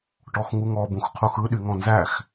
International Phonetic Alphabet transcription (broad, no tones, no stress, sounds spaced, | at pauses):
ʈ ɔ x ŋ u ŋ ɔ b ũ x qʰ u x ɯ ɗ y ŋ ɔ̃ n z æ x